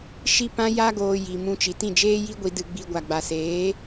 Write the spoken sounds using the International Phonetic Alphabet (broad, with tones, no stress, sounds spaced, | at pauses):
ʃ i˦ p ã˦ j a˦ ɡ oː˧ j i˨ m ũ˧ t͡ʃ i˨ t ĩ˦˨ d͡ʒ eː˦ j i˦ ɡʷ i˧ d ɨ˧ ɡ͡b i˧ ɡʷ a˨ ɡ͡b a˨ s eː˨˦